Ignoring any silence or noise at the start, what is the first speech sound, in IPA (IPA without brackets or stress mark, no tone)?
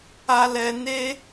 a